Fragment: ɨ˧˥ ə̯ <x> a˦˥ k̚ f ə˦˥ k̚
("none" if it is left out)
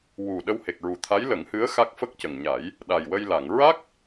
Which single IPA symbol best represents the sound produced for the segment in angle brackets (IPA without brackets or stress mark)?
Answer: x